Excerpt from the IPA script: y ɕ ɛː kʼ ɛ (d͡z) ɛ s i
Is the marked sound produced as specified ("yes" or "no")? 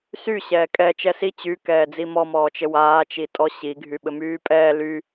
no